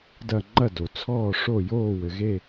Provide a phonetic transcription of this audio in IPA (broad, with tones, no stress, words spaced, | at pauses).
dɐ˥˨ ŋ͡ǃɐ˥˨do˩ t͡sʰɔː˥˨ʂo˥˨ joː˥˨wɘ˩ɣe˥˨